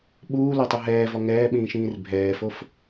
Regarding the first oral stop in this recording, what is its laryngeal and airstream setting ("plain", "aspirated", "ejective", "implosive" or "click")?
implosive